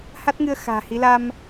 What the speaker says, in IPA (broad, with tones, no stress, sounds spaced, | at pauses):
h a˦˥ t̚ ŋ ɨ˧ ə̯ x a̤ː˨˩ h i˨˦ l a˧ m